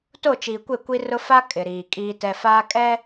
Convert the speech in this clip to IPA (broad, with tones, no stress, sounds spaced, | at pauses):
t o˦˨ t͡ʃ iː˨ kʷ e˦˨ kʷ i˦ r ʊ˦ f a˦ kʼ ɪ˨ ɾ iː˨ kʼ iː˦ t ɛ˨ f aː˦ kʼ ɛ˦